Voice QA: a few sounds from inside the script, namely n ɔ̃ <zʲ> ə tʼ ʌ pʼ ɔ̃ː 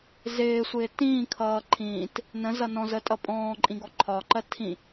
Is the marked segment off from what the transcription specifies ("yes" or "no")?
yes